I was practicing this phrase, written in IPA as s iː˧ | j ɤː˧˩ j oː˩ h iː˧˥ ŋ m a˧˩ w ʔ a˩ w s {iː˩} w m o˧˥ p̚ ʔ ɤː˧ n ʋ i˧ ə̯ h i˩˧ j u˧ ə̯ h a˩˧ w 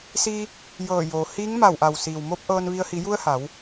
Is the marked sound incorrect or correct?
correct